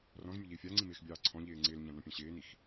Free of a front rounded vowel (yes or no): yes